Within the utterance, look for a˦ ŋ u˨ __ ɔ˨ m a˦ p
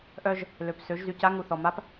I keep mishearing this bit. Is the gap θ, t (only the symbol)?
θ